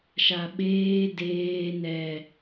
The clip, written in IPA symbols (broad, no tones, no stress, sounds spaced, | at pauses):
ʃ a ɓ eː d eː n ɛ